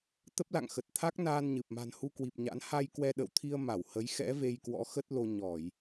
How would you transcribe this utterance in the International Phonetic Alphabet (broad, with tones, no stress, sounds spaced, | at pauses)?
t̪ ə˦˥ p̚ l a̰˧˨ ŋ x ə˨˩ t̚ t̪ʰ a˦˥ k̚ n aː˧ n ɲ ɨ˨˩ p̚ m a̤˨˩ n h u˧ k w i˨˩ p̚ ɲ a̰˧˥ n h a˧ j k w ɛ˧ ɗ ə̰˧˨ w t̪ʰ i˧ ə̯ m a˧˩ w h ə˨˦ j x ɛ̰˧˥ v e˧ j k w ɔ̰˧˥ x ə˦˥ t̚ l o˧ ɲ ɔ˧˩˨ j